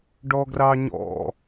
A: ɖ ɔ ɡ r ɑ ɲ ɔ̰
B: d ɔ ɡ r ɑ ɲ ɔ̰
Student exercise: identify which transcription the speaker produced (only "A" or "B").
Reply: A